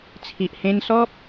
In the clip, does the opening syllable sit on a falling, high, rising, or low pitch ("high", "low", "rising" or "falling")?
low